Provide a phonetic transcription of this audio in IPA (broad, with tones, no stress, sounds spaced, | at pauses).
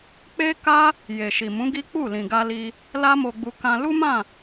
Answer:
k͡p e˦ k a˦ | j e˨ ʃ i˨ m ũ˨˦ ɡ i˦ k͡p u˦˨ l ĩ˨ ɡ a˧ l i˧ | l a˦ m o˧ ɡ͡b u˧ k ã˧ l u˦ m ã˦˨